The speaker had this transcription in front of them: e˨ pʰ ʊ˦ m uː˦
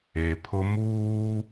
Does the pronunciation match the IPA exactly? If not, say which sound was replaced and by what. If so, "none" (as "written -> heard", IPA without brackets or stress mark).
none